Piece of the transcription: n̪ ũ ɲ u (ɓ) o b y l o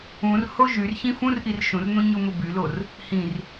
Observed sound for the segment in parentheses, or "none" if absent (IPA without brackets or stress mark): m